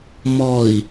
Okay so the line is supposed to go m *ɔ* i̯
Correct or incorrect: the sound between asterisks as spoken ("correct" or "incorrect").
correct